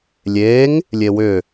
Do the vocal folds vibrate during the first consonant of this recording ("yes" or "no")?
yes